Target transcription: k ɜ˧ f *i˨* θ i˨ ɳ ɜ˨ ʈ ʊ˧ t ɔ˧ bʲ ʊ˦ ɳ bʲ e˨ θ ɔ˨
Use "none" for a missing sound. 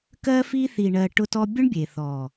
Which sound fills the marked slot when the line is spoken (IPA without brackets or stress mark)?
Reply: i˧